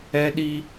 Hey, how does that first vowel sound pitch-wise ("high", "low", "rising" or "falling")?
high